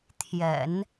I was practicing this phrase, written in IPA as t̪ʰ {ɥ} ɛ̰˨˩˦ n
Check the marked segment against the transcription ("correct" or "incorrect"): incorrect